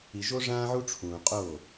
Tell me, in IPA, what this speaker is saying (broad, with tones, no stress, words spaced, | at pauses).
i˨ʒo˦ʐãː˦ʕu˦ ʈ͡ʂʰũː˨ qʼo˦˨